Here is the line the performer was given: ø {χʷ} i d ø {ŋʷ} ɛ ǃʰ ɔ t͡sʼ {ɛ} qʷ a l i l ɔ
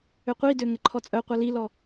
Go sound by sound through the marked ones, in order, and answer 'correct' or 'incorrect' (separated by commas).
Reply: incorrect, incorrect, incorrect